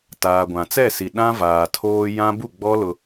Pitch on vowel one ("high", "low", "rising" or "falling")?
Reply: low